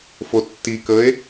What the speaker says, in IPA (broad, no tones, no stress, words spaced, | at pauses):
fotːikəːe̯